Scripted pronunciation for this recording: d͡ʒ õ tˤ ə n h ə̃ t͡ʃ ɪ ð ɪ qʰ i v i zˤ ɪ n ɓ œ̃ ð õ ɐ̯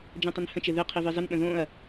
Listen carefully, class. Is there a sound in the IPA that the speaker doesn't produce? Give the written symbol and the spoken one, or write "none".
œ̃ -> ə̃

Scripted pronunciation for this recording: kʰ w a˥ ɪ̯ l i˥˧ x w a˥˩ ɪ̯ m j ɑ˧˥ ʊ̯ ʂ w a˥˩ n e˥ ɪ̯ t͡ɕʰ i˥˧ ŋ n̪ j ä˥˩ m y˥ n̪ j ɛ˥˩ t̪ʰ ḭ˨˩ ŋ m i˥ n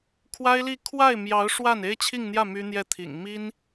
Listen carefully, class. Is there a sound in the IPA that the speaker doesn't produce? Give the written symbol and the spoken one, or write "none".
x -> kʰ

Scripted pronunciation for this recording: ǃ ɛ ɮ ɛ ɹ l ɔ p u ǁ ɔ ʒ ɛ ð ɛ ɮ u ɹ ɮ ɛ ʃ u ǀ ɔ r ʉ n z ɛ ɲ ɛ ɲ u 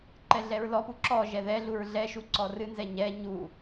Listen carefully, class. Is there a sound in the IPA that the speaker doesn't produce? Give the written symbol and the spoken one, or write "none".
ʉ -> ɨ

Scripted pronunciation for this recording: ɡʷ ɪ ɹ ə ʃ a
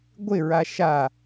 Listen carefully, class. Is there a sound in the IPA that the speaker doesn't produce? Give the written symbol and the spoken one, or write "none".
ə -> a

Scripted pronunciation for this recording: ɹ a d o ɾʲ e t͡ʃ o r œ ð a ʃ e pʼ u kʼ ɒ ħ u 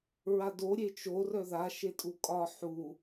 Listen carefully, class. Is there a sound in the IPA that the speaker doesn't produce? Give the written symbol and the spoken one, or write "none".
pʼ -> tʼ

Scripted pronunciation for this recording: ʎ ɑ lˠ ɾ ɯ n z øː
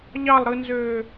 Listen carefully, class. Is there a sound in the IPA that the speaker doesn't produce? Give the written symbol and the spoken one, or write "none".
none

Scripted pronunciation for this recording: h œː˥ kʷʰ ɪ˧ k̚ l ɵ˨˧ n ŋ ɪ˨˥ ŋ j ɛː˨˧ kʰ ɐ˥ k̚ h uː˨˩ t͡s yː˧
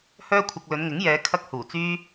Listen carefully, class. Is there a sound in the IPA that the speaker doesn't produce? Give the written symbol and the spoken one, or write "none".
none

